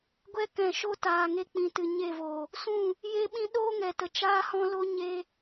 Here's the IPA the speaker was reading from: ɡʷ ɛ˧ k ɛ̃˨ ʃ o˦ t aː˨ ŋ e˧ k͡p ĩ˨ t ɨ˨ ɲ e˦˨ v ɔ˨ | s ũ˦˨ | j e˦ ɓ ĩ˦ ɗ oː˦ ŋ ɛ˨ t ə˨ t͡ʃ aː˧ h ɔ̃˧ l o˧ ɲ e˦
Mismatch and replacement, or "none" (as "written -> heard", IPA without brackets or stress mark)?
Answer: ɔ˨ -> o˨